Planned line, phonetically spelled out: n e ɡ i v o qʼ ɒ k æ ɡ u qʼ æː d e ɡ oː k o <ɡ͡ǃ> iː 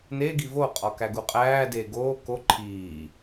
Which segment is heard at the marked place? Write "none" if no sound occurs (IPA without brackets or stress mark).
ǃʰ